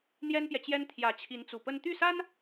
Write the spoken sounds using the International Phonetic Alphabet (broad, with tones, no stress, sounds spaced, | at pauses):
n̪ j ɛ˥ n p j ɛ˨ t͡ɕ j ɛ˥ n t̪ʰ j ä˧˥ t͡ɕʰ i˧˥ n t͡s u˨˩ p ə˥ n t̪ y˥˩ s a˥ n